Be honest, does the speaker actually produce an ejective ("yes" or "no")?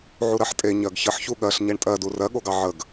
yes